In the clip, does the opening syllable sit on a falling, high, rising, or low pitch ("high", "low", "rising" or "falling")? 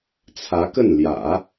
rising